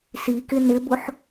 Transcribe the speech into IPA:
sikɪ nɪbʊħ

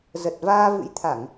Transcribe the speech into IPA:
zə˨˩t̚vaː˧vɨ̰˧˥jt̪ʰa˧˩˨ŋ

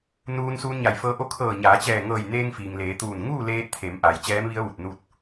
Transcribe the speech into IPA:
nuː˧n suː˧nɲa˧˩jfɤː˧ʔo˧˥ kʰɤː˧˩ ɲaː˩˧t͡ɕɛː˧˩ŋɤː˧˩j neː˧ŋ fiː˩ŋleː˩˧ t̪uː˧˩n ŋuː˥˨leː˧t̚t̪ʰe˩˧mʔa˩j t͡ɕɛː˧˥mʋi˧˥ə̯ʋu˧˩t̚ nu˥˨t̚

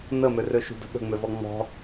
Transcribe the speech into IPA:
nə mørøʃṳdə̤ ɠə̤ŋ͡møvɔ ŋ͡mɔ̤

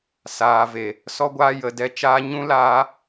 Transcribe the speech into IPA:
saː˨ve˨ | sɔ˦ɡʷaː˦ jə˧dɛ˧ t͡ʃaː˧ ɲũ˦ laː˦

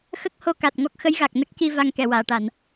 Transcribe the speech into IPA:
xə˦˥k̚ho˧ ka˨˩t̚ŋɔ˦˥k̚ xə˧˥jɣa˨˩k̚ nə˦˥k̚ci˧ va˧ŋkɛ˨˩˨waː˨˩˨ʈa˨˩˨n

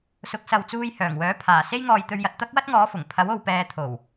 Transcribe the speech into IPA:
sʊ˨˥k̚sɐ˨wt͡suː˧j hœː˨˩ŋwœː˨˥pʰaː˨˩se˥j ŋɔː˧jt̪ɵ˧ɥ jɐ˨t̚t̪ɐ˥k̚wɐ˥t̚ŋɔː˨˥ fʊ˨˩ŋpʰɐ˨˥w o˨wpɛː˨t̪ʰo˨˩w

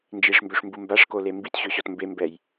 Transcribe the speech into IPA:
nd͡ʒiʂmbøʂmbu mbaʂkole mbitɕøɕɔt mbembɛj

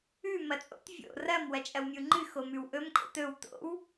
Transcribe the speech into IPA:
ʉ mɐt͡sʼo̰t vʲo̰ rɐm wɐt͡ʃʼɐwmʲuŋ͡ǃɨ xomʉwʔɵm kʼo̰tɵw to̰w

